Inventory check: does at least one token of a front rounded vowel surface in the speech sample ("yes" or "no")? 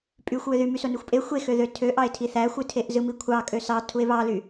yes